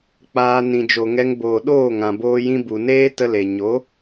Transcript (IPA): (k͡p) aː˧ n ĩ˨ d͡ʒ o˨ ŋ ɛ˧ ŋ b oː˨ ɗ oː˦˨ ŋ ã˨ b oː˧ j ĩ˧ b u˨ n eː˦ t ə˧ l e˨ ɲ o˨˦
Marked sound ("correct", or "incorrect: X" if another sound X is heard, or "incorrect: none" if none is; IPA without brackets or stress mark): correct